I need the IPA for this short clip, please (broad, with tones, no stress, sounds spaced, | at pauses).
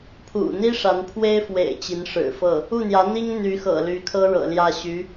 pʰ ṵ˨˩ n̪ i˥ ʂ a˧˥ n pʰ w e˥ ɪ̯ f w ḛ˨˩ ɪ̯ t͡ɕ i˧˥ n ʂ ɻ̩˨˩ f ɤ˥˩ | u˥˩ n̪ j ä˧˥ n̪ i˥ ŋ n̪ y˧˥ x ɤ̰˨˩ l y˧˥ kʰ ɤ˥ ɻ ɤ̰˨˩ l j ä˥˩ ɕ y˧˥